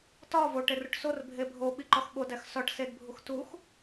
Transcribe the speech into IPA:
t ɒ v o ʈ e r u ʈ s o r bʱ e bʱ o ɓ i ǃ ɒ x ɓ o d æ x s ɒ ʈ s e d bʱ u x t u x

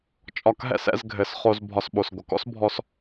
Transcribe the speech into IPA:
t͡ʃʼ ɒ˧ k ɦ ɛ̰˦ s ɛ̰˨˦ z ɡʱ ɘ˨˦ s χ o˧ z bʱ ɒ˧ s ɓ o˨ s ɡʷ ə˨ k ɔ̰˦ s bʱ ɔ˧ s

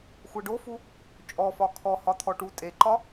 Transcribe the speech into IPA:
xʷ ɛ ɖ o f u | t͡ʃʼ ɔ f ɒ kʰ ɔ h ɒ t̪ʰ ɔ ʈ u tʼ e ǃ ɒ

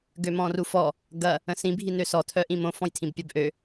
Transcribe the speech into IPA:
ɡ ø m ɔ̃ r u f ɔ | ɡ ɐ | ə̃ s ĩ bʱ i n ø s ɔ tʰ œ ʔ ĩ m õ f ɔ̃ j tʰ ĩ b pʲ œ b ʔ ø

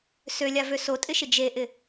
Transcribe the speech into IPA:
s ø lʲ a v ø s o tʼ ɪ ʃ ɪ d͡ʒ e ʔ ɪ

